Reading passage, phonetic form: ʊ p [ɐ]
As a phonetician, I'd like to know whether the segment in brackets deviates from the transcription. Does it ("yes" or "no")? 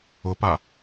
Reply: yes